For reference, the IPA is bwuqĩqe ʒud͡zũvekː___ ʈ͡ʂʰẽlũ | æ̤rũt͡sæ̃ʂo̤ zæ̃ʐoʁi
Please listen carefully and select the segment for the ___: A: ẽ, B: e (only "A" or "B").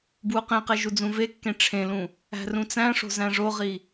A